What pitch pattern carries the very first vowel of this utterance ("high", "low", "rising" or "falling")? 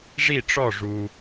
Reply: falling